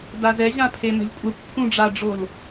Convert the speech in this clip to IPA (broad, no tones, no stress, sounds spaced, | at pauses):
d a z ɛ ʑ ã pʰ e m ɛ̤ lʲ kʷʼ ɛ kʷ pʰ ũ ɖ͡ʐ a ɖ͡ʐ o l